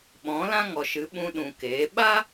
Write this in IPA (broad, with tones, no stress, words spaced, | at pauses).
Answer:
ɓɔ̃˨˦lã˦ŋɔ˨ʃɨ˨˦ ɓũ˧ɗũ˨ keː˨˦ ɓa˦